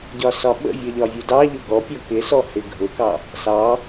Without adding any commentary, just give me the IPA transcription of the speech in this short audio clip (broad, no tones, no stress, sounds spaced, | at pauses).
ɟ ɒ s ɒ ɓ ə̰ vʲ ʌ ʎ ɒ vʲ u d ɑ ʎ ʊ ɡ ɔ pʲ ɔ k ɪ s ɔ h ɪ ɡʱ ʊ k ɑ | s ɑ